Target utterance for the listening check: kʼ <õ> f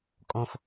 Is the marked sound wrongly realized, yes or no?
no